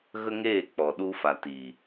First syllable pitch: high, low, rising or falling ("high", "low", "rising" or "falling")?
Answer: high